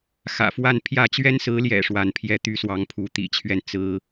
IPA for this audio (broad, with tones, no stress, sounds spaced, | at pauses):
x ä̰˨˩ f w a˥˧ n pʰ j ä˥˩ t͡ɕ ɥ ɛ˥ n s ɹ̩˧˥ l j ɛ̰˨˩ ʂ w a˥˧ n pʰ j ɛ˥˩ t̪ y˥ s w ɑ˧˥ ŋ pʰ u˧˥ t̪ ḭ˨˩ t͡ɕʰ ɥ ɛ˥˩ n t͡s ɹ̩˥